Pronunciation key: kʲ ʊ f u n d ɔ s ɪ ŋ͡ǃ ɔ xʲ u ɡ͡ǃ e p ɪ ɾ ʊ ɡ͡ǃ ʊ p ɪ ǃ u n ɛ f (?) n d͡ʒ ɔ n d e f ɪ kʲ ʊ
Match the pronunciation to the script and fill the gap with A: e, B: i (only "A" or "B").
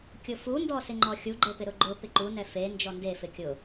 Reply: A